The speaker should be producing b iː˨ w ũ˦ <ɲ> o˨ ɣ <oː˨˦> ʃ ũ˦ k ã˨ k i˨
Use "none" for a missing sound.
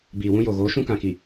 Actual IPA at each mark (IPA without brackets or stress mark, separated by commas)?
j, oː˨˦